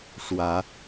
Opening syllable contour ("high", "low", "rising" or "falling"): rising